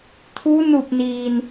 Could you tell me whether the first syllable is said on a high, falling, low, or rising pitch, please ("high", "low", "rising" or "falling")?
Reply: rising